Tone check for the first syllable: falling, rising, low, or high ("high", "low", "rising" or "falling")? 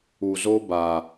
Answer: low